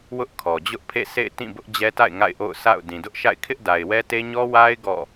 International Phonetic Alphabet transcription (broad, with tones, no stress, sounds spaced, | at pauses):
w ʊ˦ ʔ kʰ ɔ˨ d͡ʑ ʊ˦ ʔ pʰ ḛ˦˨ sʰ ḛ˦˨ ɪ̯ t ĩ˦˨ b ʊ˦ ʔ d͡ʑ ɛ˦ t a̰˦˨ ɪ̯ ŋ a̰˦˨ ɪ̯ ʔ o̰˦˨ ʊ̯ s a̰˦˨ ʊ̯ d ĩ˨ d ʊ˦ ʔ ʃ a̰˦˨ ɪ̯ kʰ ɪ˦ ʔ d a˨ ɪ̯ w ɛ˦ t e˦ ɲ ɔ˦ w a˦ ɪ̯ ɡ ɔ̰˦˨